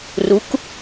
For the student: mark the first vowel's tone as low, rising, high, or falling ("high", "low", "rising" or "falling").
rising